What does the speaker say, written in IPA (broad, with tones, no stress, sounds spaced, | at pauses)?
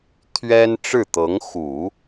t̪ʰ ɥ ɛ˥ n ʈ͡ʂ ɻ̩˥˩ t̪ ɤ˧˥ ŋ x u˨˩˦